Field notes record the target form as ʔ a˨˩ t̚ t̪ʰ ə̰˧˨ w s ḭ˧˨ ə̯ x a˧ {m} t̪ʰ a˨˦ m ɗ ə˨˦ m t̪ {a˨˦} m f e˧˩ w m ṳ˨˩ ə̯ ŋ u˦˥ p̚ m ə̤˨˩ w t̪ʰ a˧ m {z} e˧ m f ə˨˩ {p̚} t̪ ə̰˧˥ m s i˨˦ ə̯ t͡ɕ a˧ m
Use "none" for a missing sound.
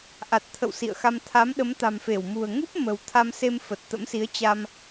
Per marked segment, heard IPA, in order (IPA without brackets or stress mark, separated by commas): m, a̤˨˩, s, t̚